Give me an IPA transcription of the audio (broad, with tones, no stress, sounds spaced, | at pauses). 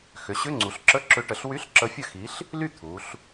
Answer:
x ʏ˩˧ ɕ ʏ˧˥˧ ŋ͡ǀ u˩˧ ɬ ǁ ə˧˥˧ ǁ ʏ˨˥ ʈ ə˩˧ ɬ w y˧˥˧ ɬ ǁ ə˨˥ fʲ ə˥˩ x i˨˥ ɬ | l y˥˩ t̪ʰ u˩˧ ɬ